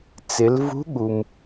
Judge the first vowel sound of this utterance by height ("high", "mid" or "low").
high